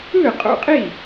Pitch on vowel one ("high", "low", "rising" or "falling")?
falling